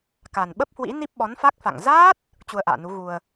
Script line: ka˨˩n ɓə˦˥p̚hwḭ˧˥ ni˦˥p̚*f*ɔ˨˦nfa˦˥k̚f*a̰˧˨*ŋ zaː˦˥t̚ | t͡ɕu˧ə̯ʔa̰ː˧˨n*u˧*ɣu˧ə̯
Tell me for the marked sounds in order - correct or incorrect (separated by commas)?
incorrect, correct, incorrect